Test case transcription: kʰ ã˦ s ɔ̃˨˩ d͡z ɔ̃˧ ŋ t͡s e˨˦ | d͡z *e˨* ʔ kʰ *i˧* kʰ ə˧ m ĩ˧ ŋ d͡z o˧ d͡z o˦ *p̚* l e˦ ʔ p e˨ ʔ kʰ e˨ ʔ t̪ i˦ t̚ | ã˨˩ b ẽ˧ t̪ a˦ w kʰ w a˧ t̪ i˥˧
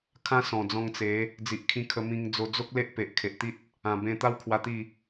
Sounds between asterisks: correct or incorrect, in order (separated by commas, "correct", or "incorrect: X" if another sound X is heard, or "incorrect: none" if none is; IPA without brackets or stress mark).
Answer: incorrect: i˨, incorrect: ĩ˧, incorrect: k̚